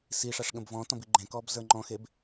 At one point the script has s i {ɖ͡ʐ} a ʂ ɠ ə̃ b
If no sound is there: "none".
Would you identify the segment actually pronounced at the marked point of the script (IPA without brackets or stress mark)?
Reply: ʂ